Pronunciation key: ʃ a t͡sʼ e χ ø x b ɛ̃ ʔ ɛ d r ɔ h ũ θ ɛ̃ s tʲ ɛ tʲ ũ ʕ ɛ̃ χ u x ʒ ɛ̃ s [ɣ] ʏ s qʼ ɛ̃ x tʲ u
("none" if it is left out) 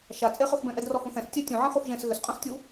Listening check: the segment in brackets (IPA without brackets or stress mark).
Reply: ɣ